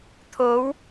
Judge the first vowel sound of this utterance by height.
mid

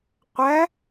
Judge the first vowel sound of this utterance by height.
low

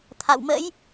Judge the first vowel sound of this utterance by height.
low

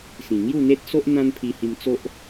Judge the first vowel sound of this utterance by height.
high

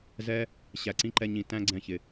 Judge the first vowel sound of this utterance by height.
mid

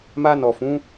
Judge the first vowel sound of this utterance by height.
low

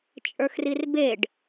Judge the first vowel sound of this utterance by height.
mid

